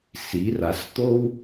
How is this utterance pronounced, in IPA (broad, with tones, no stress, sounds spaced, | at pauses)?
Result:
s i˩˧ r a˩˧ s t̪ o˥ w